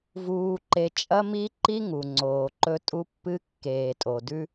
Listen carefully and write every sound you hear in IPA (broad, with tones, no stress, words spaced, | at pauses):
vuː˧ǃe˧ t͡ʃʼɐ˦mi˦ǃi˦ ŋu˨ŋ͡ǀoː˨ǃɵ˧ tʼu˧pːɨ˧kːeː˨ tʼo˨dʉ˧